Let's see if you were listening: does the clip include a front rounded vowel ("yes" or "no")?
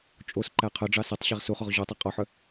yes